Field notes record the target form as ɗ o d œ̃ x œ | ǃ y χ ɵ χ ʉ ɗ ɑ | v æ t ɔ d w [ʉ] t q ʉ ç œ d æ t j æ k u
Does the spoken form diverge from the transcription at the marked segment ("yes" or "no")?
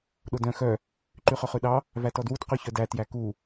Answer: yes